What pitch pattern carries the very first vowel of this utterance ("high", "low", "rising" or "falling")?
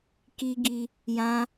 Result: high